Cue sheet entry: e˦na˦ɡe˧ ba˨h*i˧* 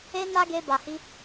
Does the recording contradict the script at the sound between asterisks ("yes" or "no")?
no